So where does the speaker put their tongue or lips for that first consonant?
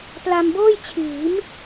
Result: lips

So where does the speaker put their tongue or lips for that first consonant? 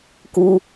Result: velum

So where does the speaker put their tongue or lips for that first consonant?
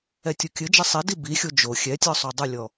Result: tongue tip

